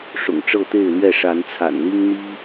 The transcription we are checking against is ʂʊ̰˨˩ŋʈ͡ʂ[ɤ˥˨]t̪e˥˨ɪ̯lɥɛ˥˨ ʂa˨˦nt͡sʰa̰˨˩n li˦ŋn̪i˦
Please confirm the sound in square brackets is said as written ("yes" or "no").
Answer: yes